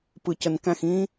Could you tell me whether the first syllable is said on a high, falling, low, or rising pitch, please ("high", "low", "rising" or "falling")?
low